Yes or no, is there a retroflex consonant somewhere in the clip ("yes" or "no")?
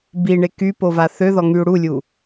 yes